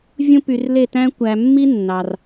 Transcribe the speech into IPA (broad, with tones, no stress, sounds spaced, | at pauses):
vʲ ũ˦ p y˧ r l e˦˨ t æ̃˦ kʷ æ˧ mː i˦ nː ɑ˧ r